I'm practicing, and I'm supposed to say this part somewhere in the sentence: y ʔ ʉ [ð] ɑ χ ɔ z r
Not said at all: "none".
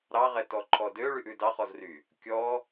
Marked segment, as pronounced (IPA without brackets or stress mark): d